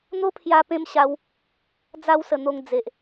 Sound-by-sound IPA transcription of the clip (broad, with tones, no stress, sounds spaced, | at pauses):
n̪ o˦ pʰ j a˦ p ẽ˦ m ɕ a˧ w | d͡z a˧ w s ə˧ n̪ o˧ ŋ d͡z e˨ ʔ